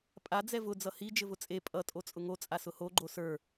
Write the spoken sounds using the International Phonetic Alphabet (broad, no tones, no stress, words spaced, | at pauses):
pʼa d͡zɛvʊ d͡zʌhi d͡ʒɘvʊt͡sʼe pʼʌ tʼot͡sʼʊŋo t͡sʼasʊho ɡ͡ǃosə˞